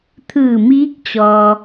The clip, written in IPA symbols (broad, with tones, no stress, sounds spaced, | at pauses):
t̪ʰ ɯː˧˩ m iː˧˥ k̚ t͡ɕ ɔː˧